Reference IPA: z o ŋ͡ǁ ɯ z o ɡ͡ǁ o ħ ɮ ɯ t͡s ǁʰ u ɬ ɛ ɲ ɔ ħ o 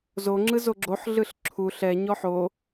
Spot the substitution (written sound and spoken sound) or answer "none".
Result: t͡s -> ɬ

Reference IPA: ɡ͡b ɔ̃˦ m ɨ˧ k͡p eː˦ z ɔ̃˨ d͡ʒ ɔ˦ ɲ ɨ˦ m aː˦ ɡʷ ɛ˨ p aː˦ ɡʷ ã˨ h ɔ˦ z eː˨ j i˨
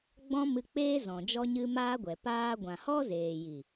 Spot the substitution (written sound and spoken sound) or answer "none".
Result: none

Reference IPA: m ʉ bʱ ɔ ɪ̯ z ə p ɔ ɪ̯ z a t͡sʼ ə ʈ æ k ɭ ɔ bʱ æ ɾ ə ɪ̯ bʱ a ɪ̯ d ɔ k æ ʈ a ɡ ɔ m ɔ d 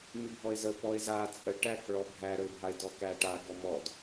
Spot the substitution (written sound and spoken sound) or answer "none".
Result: none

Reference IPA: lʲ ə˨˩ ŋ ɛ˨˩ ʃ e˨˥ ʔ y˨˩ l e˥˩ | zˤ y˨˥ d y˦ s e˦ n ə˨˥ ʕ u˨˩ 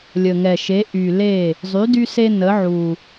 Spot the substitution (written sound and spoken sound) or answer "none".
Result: none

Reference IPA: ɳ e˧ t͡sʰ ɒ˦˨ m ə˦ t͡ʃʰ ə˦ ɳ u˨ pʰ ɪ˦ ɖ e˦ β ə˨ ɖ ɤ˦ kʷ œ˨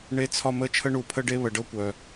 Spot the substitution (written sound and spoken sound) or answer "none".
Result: ɪ˦ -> ə˦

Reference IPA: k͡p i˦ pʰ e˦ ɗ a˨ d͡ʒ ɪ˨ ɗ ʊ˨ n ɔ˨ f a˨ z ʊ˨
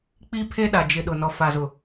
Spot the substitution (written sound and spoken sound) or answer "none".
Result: none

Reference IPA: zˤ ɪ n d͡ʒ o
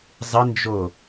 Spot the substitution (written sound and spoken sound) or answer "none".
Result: none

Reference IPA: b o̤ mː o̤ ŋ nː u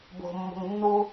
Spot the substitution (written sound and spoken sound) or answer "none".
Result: none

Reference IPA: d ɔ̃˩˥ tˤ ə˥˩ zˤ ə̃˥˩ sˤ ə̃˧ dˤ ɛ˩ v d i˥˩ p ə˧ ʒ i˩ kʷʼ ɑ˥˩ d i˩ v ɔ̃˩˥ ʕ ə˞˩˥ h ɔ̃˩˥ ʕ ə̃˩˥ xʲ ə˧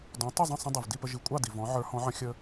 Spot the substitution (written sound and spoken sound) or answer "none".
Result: none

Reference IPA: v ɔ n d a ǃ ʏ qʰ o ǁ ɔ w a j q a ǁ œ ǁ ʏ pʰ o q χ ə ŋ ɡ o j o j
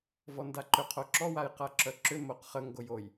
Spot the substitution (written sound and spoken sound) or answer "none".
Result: pʰ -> m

